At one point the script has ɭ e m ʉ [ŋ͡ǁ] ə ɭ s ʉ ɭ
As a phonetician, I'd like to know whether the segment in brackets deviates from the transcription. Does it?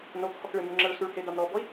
no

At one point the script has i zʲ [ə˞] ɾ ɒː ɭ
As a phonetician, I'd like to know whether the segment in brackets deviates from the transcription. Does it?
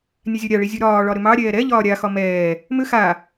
no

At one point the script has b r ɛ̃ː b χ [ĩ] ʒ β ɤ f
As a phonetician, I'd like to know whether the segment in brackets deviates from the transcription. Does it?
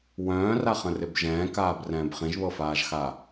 no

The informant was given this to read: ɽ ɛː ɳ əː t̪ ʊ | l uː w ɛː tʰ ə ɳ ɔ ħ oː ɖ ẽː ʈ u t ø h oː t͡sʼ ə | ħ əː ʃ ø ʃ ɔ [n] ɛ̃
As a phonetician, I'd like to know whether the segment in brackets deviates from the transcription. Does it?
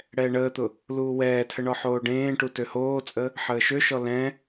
yes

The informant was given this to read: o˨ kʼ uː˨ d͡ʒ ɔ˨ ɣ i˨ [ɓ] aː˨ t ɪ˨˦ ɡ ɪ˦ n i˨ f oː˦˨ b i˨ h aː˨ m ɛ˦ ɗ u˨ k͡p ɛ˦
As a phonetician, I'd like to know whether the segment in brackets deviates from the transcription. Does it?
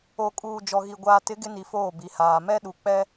yes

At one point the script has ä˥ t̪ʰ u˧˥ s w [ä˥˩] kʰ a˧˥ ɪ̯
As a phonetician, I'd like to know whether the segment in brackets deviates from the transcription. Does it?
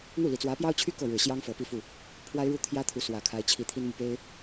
yes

